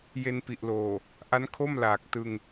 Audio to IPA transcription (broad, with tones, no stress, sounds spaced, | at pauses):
j e˧ n p i˨˩ ʔ l oː˨˩ | ʔ a˦˥ n kʰ o˥˩ m l aː˨˩ k̚ t ɯ˧ ŋ